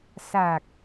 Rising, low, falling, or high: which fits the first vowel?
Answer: low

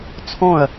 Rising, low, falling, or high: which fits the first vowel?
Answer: falling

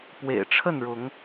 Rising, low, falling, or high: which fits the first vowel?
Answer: low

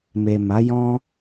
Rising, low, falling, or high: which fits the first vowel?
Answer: low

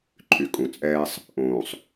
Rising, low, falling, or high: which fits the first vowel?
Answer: low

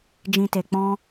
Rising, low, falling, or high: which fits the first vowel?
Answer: low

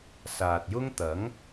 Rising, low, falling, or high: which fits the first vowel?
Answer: low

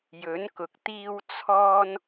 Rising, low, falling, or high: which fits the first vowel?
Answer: rising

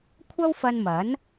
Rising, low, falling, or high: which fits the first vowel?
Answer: high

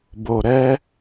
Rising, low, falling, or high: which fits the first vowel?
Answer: low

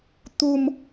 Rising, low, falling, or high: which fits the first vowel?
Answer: low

